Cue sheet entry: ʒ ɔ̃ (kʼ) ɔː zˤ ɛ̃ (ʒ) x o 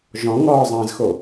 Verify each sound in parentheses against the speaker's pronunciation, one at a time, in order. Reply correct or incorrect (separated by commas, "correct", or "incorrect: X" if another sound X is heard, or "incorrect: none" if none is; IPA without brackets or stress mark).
incorrect: ŋ, incorrect: z